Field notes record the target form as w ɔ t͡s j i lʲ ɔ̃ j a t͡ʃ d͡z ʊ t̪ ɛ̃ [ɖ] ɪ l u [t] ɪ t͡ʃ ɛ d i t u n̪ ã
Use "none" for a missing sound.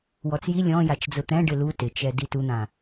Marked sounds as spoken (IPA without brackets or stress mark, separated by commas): ɖ, t